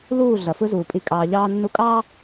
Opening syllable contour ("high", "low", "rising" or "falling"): falling